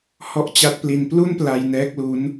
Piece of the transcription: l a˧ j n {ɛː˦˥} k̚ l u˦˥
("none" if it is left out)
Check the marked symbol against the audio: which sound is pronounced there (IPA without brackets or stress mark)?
ɛː˦˥